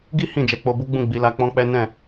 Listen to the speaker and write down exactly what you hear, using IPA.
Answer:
ɡi˦ hĩ˦˨d͡ʒɛ˨˦k͡po˧bu˦ ɡ͡bũ˦˨ɡ͡bi˨˦la˧ k͡pɔ̃˦k͡pɛ˦ nɛ̃˦˨

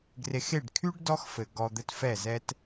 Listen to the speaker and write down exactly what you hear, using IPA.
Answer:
ɡre˨xe˦˨ɖ kʰy˦ɖ dɔ˦xfɘ˨ ɡɔ˨ d̪ɘ˦tfɛ˦˨zɛ˦t

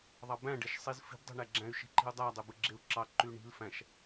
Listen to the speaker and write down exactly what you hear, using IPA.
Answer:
ðˤɑbæ̃ ɖeʃsˤizfi̤b dˤo̤ɳæɡ͡ǁæ̃y̯ ʃi̤ǃi̤u̯dˤæ dˤøbɯɡ͡ǁeu̯ǁɑ ǃyɳi̤l fæ̃ʃ

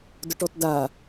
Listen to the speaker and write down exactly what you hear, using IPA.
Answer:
dʊʈɔtda

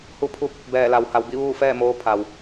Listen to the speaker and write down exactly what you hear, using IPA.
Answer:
hu˧pʰu˧p̚ | bɛː˧˩la˩˧wha˩˧w bi˥˨ʋuː˥˨fɛː˥˨moː˧˥ pʰa˩w

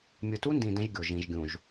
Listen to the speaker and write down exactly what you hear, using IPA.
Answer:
mʲɯ˨tu˦ndĩ˨ dɛ̃˦ʒɡʲo˨ ʒĩ˨ʒɡʲũ˨ʒ

